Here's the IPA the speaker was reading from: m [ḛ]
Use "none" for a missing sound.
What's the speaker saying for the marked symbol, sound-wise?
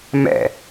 ɛ̰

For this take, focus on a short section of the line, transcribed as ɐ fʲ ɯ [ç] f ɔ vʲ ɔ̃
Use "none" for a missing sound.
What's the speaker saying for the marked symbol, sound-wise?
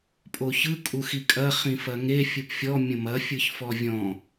ç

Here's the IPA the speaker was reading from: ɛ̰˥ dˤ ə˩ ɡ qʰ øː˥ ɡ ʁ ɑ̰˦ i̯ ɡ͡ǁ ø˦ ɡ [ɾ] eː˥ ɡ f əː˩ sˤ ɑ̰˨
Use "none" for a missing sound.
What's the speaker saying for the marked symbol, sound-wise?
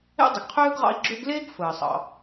l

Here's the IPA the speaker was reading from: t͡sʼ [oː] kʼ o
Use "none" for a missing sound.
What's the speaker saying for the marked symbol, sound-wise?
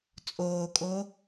oː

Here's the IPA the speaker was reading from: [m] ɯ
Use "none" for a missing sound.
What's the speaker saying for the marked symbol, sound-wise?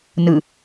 n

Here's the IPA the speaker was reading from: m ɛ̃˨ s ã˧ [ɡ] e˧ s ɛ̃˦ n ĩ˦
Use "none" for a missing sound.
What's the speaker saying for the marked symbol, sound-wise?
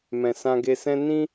ɡ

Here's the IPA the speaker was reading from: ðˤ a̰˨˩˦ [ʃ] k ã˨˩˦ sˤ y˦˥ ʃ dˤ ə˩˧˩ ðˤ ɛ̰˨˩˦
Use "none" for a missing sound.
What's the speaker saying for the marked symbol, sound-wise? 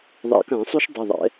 none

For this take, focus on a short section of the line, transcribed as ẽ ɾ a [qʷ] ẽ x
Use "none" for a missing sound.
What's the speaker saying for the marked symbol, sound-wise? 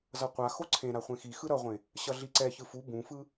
χʷ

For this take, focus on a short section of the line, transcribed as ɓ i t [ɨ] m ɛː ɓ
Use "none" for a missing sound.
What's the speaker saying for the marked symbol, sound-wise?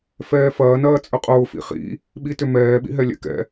ʏ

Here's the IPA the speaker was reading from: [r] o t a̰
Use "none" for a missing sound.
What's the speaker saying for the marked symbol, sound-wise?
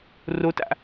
r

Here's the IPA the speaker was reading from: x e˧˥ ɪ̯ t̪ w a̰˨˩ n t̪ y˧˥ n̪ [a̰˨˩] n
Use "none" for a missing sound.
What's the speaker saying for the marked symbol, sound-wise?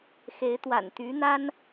a˥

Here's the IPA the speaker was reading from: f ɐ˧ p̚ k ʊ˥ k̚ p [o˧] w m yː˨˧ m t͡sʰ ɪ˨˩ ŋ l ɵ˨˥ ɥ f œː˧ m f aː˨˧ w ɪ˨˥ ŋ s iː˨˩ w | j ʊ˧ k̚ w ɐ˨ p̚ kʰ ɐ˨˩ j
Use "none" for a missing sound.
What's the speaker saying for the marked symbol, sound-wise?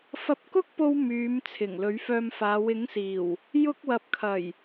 o˧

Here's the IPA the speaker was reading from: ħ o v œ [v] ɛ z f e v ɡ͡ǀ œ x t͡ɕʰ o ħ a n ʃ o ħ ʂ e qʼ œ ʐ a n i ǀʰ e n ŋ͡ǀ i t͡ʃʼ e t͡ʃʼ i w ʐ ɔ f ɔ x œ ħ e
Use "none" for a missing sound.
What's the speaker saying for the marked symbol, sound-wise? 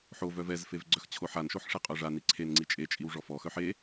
v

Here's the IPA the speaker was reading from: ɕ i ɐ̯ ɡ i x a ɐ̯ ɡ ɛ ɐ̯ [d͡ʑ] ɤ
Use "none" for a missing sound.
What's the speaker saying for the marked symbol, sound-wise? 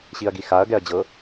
d͡ʑ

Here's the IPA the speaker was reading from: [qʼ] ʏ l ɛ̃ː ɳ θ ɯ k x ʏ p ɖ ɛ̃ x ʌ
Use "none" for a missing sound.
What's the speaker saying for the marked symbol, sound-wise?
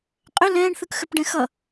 qʼ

